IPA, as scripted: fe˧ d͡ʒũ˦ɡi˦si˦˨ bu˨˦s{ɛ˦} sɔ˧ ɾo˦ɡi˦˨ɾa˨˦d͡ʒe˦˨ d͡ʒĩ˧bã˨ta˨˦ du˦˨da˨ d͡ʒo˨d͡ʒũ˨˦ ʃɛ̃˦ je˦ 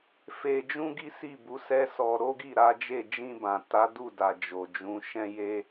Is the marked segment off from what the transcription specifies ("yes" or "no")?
no